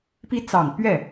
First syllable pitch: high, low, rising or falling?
rising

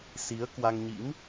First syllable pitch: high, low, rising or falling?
rising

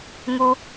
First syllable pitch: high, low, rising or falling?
high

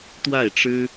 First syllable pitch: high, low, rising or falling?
falling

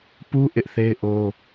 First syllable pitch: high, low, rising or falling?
high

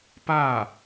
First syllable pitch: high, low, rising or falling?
falling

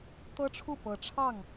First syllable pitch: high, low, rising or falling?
high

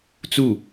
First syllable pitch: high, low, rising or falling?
falling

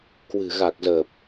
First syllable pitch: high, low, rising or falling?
low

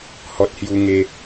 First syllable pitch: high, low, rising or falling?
high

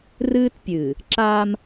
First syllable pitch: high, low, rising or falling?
high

